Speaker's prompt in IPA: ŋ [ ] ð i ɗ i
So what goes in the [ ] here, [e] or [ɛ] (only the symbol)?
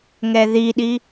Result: ɛ